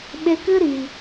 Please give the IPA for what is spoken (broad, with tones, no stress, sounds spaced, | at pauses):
ɓ e˧ k ɨ˦ ɾ i˨